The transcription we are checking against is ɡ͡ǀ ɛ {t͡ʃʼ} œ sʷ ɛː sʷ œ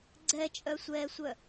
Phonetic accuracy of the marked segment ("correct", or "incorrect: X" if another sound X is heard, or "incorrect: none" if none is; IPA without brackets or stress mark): correct